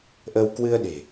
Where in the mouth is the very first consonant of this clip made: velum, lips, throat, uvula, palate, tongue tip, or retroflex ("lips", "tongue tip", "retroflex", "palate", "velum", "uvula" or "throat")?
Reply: throat